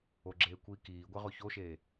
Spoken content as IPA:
o ɡ͡ǁ eː kʷ iː k iː ɡʷ ɛ ʁ o ç o ʃ eː

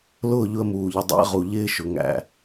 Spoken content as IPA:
l ʊː˦˨ ʎ ʊ˧ ə̯ m uː˨ ʎ ɪ˨ dˤ æ̰˦ ʁ u˨ ʎ ɪː˦ ʃ ʊ˨ ŋ æ̰˨

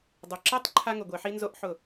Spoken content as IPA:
dˤ ʊ˨ ǁ e˦ tˤ ǃʰ a˦ ŋ ʊ˨ ɡʷ e˨ ħ i˦ n z o˦ ʔ ħ ʊ˦˨

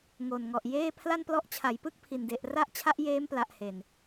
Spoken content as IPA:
ŋ o˨˩ n ŋ ɔ˨˩ ʔ j eː˥˩ pʰ l a˥˩ n p l ɔ˦˥ ʔ t͡ɕʰ a˩˦ j p ɯ˥˩ k̚ pʰ i˨˩ n d e˨˩ ʔ r a˥˩ ʔ t͡ɕʰ a˦˥ ʔ j eː˦˥ m p l a˨˩ ʔ h e˨˩ n

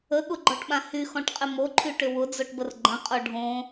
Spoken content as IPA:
ə ɠ ʊ ɡ͡ǃ ɔ ʈ ɓ ã h y x ɔ̃ ʈ qʼ ɪ m o ǃʰ y ʈ ʏ w ʊ d͡z o ʈ b ə r ɡ͡ǃ ə̃ qʼ o ɖʱ õ

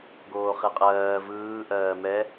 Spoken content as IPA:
ɡ oː χ e qʼ ɜː v ɯː ʔ ɜː m ɛ

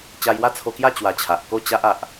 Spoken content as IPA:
t͡ɕ a˧ j w a˦ t͡sʰ o˧ k j a˥˧ t͡ɕ w a˧ t͡ɕʰ a˨ ʔ k o˥˧ t͡ɕ a˦ ʔ a˨ ʔ

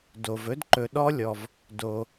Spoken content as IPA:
d o˩ v ɵ˥ d ǃ ɵ˨ ɗ ɔ˦ lʲ ɔ˩ v | d o˩

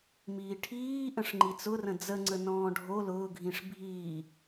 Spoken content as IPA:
m iː ʈʰ iː ʔ ə̃ ʂ ŋ͡ǃ i t͡s ʊ r ə̃ d͡z ə ŋ͡ǀ ə n ɔ̃ː ɖʱ o l ʊː ɡʱ ĩ ʂ bʱ iː

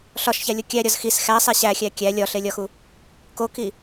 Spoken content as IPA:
ɬ ɒ ʃ ç æ lʲ o kʲ æ ɾʲ ɒ z x i s x æ sˤ e ɕ æ xʲ æ kʲ æ lʲ ɒ ɬ e lʲ ɒ x u | k o k i

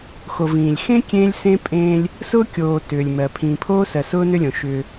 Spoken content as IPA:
x o˨ v ĩː˨ lʲ x ẽ˦ kʲ ẽː˦ lʲ s ẽ˦ pʼ ẽː˦ lʲ | s ʊː˦ kʲ oː˨ t ʏː˨ lʲ m ɜ˨ pʰ ĩː˨ pʰ oː˦ s ɜ˨ s ʊː˦ n ʏ˦ lʲ õ˨ ʃ ʏː˦

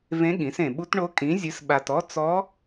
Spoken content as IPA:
v ẽ˧˥ ɠ ĩ˩˥ s ẽ˨ ɓ u˧˥ t ɳ o˧˥ kʼ ĩ˩˥ zʲ ɨ˩˥ s ɓ a˨ t ɔ˧˥ t͡s ɔ˧˥

